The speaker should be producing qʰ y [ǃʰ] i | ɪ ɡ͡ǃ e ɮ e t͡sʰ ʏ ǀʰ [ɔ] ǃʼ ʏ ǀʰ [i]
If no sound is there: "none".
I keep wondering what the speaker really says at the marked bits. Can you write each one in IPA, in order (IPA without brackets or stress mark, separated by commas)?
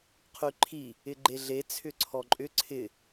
ǃʰ, ɔ, ɪ